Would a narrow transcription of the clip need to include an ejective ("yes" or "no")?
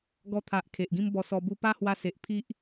no